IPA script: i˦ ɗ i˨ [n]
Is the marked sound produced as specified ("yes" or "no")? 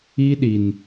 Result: yes